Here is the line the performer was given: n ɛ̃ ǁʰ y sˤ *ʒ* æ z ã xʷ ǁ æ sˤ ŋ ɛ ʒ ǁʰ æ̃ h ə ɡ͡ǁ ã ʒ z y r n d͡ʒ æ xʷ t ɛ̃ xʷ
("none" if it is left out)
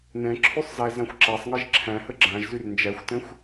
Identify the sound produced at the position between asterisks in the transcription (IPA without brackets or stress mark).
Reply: z